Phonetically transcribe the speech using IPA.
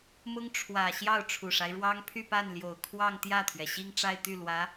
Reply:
mʊ˥ŋ ʈ͡ʂʰwä˨˩ ɕjɑ˥˩ʊ̯ʈ͡ʂʰu˨˩ʂa˦ɪ̯ɻwɑ˥ŋ pʰy˥˧pa˥˩n ljo˨˩ʊ̯kʰwɑ˥˧ŋt̪jä˥˩t̪ʰɥɛ˩ ɕi˥˧ŋʈ͡ʂa˥˧ɪ̯t̪y˥˩ lwä˧˥

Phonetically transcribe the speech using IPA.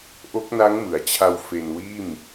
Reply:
ʔo˦˥k̚ na˦˥ŋmɯ˩˦a̯t͡ɕʰa˧w fe˧nwiː˥˩m

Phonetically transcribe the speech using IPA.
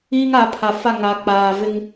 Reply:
iː˦ŋa˨˦pʰa˨ fa˦˨ŋa˨k͡paː˨vɪ˦ŋ

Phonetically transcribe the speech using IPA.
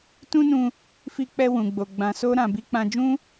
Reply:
tũ˦nũ˧ | fi˧k͡pɛ˧ wũ˨ɡ͡bo˨ ɡ͡bã˧ so˦ ɾã˧ bi˧k͡pã˧d͡ʒũ˦

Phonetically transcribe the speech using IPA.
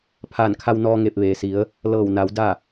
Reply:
pʰaː˧˩nkʰa˧wnɔː˧ ŋe˧˩p̚ʋeː˩si˩˧ə̯ | lɤː˧˩wna˩˧w da˥˨

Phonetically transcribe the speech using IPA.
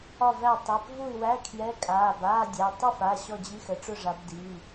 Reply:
ɒ˥˨væ˥˨ tˤæ˩˧˩pvu˥˨y̯wæ˧˥˧ kʰjɛ˧˥˧kʼaː˩˧˩b aː˧˥˧dʲæ˩˧˩ tˤu˥˨fa˩˧˩ ɕɔ˥˨d͡ʑi˧˥˧xə˩˧ʈ͡ʂʊ˥˨ ʐa˩˧b di˩˧˩

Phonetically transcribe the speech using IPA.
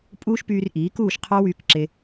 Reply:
pʼuː˦ʃpyː˧rʔiː˨˦kuː˦˨ʃ qʰɑ˦wyː˧kǁe˧

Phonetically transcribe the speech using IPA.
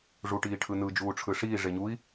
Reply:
ʐuʈiːʈʰɯnɯ d͡ʒuːʈ͡ʂʰɯʂiː ʐeɲui̯

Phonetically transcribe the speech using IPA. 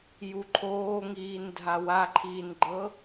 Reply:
juǃʰoːŋiːndʱa waǃʰiːnɡ͡ǃɤ

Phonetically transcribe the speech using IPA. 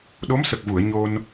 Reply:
ɗo˧˥msə˨˩k̚vu˨˩˨ə̯ ɲo˧n

